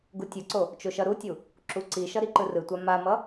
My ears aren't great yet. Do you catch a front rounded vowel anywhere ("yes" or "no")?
no